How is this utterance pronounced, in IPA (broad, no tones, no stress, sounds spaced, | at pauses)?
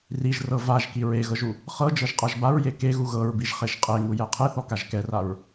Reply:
r i ʒ r ɤ v a ʒ k i ɹ e ɣ ɤ ʒ u | χ ɤ d͡ʒ ɤ ʒ qʼ a ʒ b a ɹ j e k e ɣ u ɣ ɤ ɹ b i ʒ χ e ʒ qʼ e ŋ u j ɛ qʰ e θ ɔ k a ʒ k ɛ r a ɹ